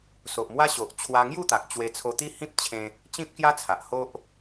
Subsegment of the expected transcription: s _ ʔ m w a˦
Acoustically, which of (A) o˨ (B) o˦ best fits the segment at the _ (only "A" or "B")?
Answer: A